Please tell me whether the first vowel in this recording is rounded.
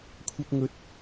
no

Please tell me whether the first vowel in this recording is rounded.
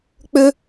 yes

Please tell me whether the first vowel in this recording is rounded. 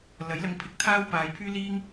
no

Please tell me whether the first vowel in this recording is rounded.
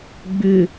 yes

